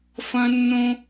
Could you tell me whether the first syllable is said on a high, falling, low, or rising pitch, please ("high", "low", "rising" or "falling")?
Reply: high